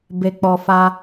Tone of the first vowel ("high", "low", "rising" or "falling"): low